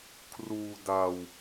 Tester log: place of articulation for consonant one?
velar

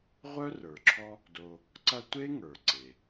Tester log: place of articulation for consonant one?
uvular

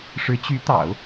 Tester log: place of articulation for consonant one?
retroflex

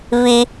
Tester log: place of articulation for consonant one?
labial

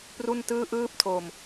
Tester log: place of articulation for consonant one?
labial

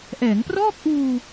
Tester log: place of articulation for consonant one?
glottal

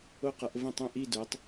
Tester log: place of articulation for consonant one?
uvular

